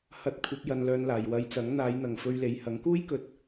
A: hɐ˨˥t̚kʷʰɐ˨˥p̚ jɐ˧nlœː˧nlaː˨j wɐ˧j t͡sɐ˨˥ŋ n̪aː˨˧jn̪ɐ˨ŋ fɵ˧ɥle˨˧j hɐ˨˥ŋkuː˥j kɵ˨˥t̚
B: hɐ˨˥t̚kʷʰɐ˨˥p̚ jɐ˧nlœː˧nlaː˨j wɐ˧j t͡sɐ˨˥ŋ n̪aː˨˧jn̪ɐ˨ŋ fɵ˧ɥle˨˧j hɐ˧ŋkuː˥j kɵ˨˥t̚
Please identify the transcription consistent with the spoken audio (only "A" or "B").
A